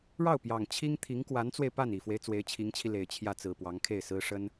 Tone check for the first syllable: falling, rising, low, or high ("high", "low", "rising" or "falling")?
falling